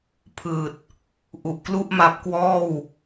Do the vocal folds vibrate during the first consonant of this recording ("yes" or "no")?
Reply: no